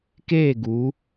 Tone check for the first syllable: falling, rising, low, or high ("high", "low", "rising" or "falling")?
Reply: falling